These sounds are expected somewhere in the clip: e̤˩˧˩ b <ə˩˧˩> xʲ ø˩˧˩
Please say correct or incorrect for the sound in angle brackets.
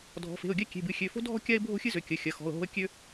incorrect